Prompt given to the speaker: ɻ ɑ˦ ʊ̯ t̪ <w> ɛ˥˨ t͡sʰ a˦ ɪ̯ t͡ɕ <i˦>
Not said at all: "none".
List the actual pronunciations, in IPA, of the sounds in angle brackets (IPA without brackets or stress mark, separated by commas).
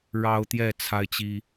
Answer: j, i˦